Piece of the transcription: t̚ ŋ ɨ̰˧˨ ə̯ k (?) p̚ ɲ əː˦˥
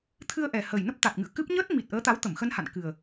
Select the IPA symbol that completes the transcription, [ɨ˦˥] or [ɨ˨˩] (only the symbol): ɨ˦˥